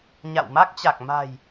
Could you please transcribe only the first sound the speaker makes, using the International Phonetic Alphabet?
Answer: ɲ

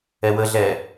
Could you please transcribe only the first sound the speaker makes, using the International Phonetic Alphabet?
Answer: ɛ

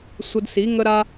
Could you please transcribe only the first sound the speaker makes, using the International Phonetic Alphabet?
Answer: sʷ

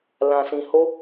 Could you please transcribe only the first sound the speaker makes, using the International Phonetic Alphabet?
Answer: l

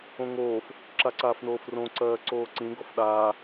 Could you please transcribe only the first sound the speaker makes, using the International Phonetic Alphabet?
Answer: õ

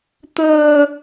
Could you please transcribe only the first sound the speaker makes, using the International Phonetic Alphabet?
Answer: t̪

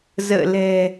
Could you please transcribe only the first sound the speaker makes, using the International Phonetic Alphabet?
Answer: z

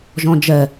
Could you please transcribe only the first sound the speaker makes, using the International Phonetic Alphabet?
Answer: ʒ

